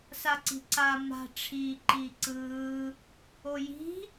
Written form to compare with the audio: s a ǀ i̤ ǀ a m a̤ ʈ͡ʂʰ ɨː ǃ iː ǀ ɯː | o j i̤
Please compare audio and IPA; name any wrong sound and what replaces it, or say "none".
ɨː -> iː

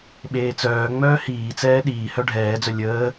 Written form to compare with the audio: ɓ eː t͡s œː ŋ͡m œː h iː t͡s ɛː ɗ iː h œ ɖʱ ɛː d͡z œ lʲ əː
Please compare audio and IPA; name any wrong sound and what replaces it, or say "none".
none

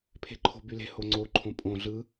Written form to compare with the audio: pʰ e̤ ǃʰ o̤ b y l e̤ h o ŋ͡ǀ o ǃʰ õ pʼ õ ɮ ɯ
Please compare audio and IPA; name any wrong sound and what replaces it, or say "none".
none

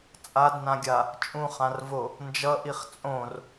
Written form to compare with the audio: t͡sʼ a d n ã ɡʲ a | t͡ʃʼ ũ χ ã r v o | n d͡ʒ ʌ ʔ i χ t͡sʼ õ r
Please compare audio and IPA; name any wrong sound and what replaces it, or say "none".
none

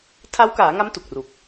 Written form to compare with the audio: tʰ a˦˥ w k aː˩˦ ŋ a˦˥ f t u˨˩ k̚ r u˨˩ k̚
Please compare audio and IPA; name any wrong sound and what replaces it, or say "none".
f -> m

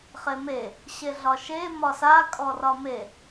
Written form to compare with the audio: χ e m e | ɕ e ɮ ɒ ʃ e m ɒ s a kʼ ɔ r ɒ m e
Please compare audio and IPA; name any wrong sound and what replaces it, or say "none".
none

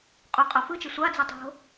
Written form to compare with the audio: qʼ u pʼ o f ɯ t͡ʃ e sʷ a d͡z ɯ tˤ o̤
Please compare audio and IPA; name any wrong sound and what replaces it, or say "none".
pʼ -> qʼ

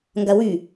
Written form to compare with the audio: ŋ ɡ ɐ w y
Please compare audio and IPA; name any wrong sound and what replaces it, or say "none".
none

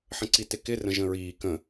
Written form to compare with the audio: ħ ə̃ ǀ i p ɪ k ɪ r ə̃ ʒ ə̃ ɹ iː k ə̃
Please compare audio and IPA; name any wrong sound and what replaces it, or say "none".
p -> t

